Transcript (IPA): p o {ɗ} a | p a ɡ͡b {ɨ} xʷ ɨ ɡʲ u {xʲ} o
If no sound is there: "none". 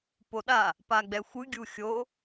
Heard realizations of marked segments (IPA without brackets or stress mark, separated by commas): ɗ, ɛ, xʲ